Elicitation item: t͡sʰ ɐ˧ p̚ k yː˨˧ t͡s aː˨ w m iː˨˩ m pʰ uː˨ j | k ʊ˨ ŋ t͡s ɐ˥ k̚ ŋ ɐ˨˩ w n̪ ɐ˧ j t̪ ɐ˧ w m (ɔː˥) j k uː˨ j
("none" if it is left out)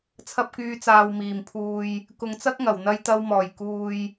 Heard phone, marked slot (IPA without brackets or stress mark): ɔː˨˩